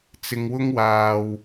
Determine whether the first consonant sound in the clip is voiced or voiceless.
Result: voiceless